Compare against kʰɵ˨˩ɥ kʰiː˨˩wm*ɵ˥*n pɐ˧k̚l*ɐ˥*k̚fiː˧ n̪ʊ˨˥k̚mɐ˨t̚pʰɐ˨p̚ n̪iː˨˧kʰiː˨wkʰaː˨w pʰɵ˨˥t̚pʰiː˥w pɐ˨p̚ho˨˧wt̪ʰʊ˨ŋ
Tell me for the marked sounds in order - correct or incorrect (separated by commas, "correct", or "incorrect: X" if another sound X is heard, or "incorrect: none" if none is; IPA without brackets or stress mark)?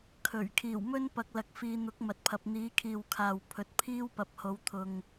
correct, incorrect: ɐ˧